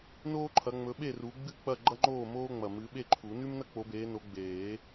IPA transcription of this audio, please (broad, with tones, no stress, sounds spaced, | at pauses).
n oː˥ ǃʰ ɐ˨˦ ŋ͡m ɵ˨˦ ɓ e˥˨ r u˨˦ ɡ͡b ɨ˥˨ k͡p ɐ˥˨ ɡ͡ǃ ɐ˥ ŋ͡ǃ oː˥˨ m oː˥ ŋ͡m ɐ˨˩ m ɨ˨˦ ɓ e˥˨ ǃʰ u˨˩˦ n ʉ˥ m n ɐ˥ k͡p o˨˦ b eː˨˦ n o˨˦ ɡ͡b eː˨˩˦